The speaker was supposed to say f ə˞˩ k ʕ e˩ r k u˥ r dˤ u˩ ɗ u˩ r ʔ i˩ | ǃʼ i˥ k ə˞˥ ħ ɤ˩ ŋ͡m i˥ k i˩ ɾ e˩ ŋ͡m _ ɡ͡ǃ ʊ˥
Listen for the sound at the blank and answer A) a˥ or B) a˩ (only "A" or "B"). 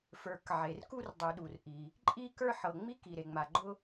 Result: B